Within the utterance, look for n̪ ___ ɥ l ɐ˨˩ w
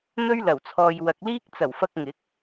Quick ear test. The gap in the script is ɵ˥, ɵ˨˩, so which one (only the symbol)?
ɵ˥